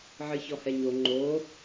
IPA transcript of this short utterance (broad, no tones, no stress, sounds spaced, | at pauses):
ʕ ɨ ç ɔ h ɛ ɲ o ŋ͡ǃ o